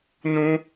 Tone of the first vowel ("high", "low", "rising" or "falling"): high